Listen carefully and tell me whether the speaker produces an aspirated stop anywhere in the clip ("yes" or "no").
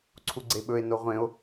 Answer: yes